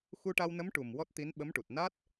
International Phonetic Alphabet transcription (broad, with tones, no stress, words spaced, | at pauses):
xu˧ʈa˧wnə˧˥m ʈu˨˩m wɔ˦˥t̚t̪i˧˥n ɓə˧˥mʈu˨˩t̚ na˦˥t̚